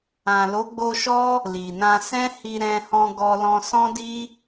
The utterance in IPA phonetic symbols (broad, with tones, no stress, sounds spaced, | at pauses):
ã˨ l o˨˦ ɡ͡b o˧ ʃ ɔ˦ | l i˨ n ã˧ s ɛ̃˦ h i˧ ɾ ɛ̃˧ h ɔ̃˧ ɡ ɔ˧ l ɔ̃˧ s ɔ̃˦ d i˦